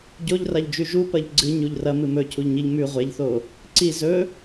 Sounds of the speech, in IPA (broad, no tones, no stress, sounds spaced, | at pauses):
ɟ o ʎ r a ʎ d͡ʒ ʉ ʒ u p ɐ ʎ ɡ͡ǀ ɨ ɲ u ʎ r ɐ m ɨ m ɵ cʰ u ʎ ɲ i ʎ m ʉ ʁʷ e ʎ θ o | ǀ i z ɵ